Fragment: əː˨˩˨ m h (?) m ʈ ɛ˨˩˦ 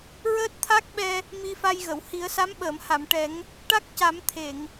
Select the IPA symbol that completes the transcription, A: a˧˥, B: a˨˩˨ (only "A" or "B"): B